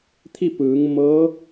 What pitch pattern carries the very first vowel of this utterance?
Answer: falling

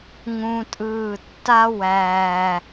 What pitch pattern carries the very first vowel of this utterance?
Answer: high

